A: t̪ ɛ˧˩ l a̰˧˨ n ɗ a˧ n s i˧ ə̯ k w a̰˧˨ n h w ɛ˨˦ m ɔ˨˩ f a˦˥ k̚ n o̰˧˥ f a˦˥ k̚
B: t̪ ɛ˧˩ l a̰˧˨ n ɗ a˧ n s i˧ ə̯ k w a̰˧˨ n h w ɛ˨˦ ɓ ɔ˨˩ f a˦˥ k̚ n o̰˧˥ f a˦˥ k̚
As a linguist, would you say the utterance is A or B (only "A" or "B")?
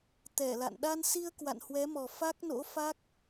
A